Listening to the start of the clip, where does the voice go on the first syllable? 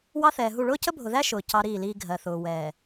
high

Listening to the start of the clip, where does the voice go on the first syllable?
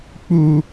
high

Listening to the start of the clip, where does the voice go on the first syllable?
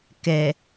low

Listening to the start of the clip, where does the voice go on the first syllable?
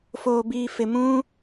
low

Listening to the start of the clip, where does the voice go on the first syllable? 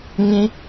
high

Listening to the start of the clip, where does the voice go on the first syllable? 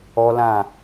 high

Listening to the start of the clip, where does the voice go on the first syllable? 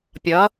rising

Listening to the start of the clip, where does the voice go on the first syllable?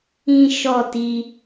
high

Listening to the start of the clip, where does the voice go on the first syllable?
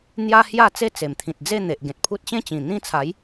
high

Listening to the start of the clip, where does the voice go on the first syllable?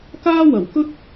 high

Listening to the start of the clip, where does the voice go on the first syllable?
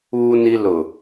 high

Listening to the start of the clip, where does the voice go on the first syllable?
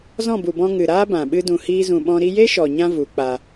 falling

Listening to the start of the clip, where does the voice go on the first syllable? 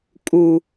low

